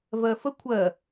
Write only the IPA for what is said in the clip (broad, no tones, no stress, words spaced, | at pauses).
vɜfə kʷʰɜ